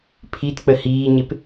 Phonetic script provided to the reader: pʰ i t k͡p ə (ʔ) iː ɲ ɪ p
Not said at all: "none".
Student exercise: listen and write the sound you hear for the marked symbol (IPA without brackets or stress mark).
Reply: h